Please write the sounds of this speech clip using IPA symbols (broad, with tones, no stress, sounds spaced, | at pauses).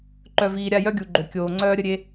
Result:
ǃ œ˨ v iː˨ ɾʲ a˦˨ j œ˦ ɡʲ u˨ ɡ͡ǃ ø˨ kʲ oː˨ ŋ͡ǀ œː˦ ɾʲ ə˦ ɾʲ e˦